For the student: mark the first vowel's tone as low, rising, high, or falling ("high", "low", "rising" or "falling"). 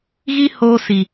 high